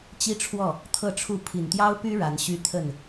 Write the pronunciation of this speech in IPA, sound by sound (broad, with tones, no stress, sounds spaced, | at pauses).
t͡ɕ i˥ ʈ͡ʂʰ w ɔ˥˩ | t̪ʰ ɤ˥˧ ʈ͡ʂʰ u˥˩ pʰ i˨˩ n t̪ j ɑ˥ ʊ̯ p y˥ ɻ a˧˥ n ɕ y˥ t̪ʰ ə˥˩ n